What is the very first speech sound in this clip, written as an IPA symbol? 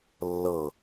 lː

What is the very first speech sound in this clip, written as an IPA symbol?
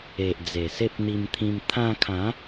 e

